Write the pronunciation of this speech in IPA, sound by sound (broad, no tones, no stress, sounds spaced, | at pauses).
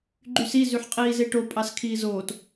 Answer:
ɡ͡ǃ y s i z y ħ qʼ iː z e ʈ o pʼ ɑ s kʰ iː z oː t